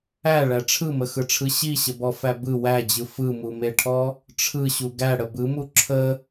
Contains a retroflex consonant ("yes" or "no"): yes